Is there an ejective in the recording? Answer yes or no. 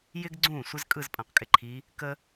yes